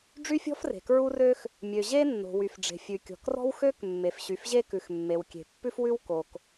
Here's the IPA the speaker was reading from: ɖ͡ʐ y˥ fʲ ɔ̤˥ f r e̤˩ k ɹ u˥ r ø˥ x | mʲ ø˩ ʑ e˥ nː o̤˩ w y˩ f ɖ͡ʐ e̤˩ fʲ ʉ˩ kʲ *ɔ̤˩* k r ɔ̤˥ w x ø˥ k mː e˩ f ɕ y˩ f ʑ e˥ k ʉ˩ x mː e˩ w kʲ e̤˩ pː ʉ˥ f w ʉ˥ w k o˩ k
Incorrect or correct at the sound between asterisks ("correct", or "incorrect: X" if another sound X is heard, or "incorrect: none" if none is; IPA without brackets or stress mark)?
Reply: correct